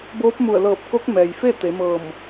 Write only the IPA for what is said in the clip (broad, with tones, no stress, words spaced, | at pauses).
boː˧˥p̚mu˧˩ə̯ lɤː˧˩p̚ko˧˥k̚ mɛː˩jfe˥˨ t̪e˩˧mɤː˧˩m